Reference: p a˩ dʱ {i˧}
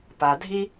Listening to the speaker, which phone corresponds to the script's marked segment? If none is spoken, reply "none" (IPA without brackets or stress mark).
i˧